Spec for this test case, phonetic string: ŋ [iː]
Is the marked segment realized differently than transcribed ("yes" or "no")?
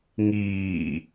no